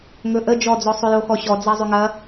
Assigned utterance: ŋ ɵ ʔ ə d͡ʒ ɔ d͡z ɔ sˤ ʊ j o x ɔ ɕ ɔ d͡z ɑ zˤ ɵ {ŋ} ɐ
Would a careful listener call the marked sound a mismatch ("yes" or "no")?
no